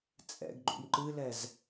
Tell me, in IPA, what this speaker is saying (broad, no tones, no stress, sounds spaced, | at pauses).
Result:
t͡sʼ ɛ̰ ɡ ɡ͡ǃ ṵ m ǃ ɨ l ɛ z